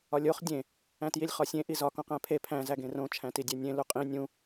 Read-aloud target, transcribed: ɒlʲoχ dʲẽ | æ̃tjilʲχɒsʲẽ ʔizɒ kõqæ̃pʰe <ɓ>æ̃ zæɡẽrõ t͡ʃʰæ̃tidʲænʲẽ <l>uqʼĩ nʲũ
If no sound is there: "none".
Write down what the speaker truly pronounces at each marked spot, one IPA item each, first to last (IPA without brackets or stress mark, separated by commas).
pʰ, l